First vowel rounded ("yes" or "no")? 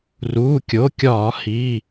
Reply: yes